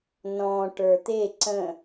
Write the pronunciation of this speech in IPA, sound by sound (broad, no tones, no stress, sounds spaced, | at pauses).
n ɔ̃ ʈ ə˞ t̪ e ǀ ə̃